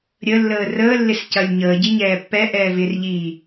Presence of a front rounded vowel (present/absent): absent